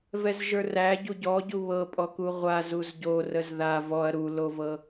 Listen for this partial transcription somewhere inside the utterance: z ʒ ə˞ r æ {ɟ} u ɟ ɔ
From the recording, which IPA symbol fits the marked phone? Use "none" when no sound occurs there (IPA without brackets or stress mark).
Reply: ɟ